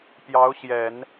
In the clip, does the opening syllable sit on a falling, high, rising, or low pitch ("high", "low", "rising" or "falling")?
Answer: rising